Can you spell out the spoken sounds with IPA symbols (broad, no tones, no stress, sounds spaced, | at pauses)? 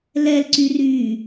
l ɛ l ǀ y r yː